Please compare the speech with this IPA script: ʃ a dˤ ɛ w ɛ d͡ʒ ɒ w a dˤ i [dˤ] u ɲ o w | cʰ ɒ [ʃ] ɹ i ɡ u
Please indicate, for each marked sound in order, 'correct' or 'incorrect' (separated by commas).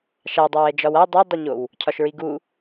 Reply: correct, correct